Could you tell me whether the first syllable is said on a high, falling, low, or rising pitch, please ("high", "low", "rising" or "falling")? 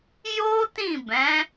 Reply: high